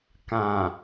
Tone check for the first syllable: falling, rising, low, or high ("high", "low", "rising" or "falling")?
low